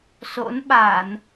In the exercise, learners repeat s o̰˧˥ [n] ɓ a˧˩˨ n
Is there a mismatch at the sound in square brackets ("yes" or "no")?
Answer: no